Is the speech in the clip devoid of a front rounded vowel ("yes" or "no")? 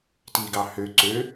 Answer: no